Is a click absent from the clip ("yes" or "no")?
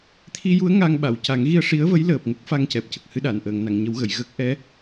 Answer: yes